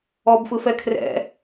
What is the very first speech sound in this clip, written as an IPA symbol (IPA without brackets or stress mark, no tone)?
ɔ